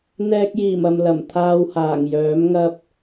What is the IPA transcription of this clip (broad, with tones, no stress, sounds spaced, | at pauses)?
n̪ ɛː˧ k̚ j iː˨˩ m ɐ˨ m l ɐ˨˩ m t̪ʰ aː˧ w h aː˨˩ ŋ j œː˨˥ m ŋ ɐ˥ p̚